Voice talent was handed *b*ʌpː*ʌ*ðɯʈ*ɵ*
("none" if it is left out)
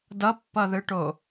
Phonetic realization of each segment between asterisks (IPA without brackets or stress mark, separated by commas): d, ʌ, o